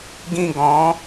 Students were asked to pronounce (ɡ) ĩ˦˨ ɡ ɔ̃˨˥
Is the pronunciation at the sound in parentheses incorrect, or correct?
correct